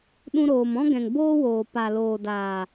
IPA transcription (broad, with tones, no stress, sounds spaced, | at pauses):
ɗ ũ˧ ɾ oː˨ m ɔ̃˦ ɡ ɛ̃˨ ŋ b oː˦ w oː˨ p a˨ l oː˨ d aː˨